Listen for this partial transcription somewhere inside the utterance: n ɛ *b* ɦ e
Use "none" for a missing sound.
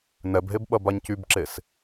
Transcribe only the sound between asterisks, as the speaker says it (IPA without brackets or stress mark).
b